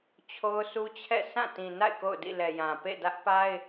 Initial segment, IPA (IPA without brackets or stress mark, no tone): t͡ɕʰ